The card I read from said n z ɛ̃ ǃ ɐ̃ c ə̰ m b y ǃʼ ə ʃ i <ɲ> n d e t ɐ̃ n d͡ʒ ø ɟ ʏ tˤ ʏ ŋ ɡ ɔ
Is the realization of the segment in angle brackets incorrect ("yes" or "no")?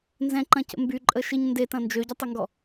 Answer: no